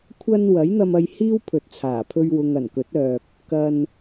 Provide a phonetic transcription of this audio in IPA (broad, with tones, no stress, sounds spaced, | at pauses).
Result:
kʷʰ ɐ˧ n w ɐ˨˥ j n̪ ɐ˧ m ɐ˧ j h iː˥ w pʰ ɵ˨ t̚ t͡sʰ aː˨˩ pʰ ɵ˧ ɥ w ʊ˨ ŋ ɐ˨˩ n k ɵ˨˥ t̚ œː˨ k̚ | k ɐ˧ n